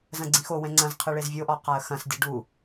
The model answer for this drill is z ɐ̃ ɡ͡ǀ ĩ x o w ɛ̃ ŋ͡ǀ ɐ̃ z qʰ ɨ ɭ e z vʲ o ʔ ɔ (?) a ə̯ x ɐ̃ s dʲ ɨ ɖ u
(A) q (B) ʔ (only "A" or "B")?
A